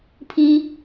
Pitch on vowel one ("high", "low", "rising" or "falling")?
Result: high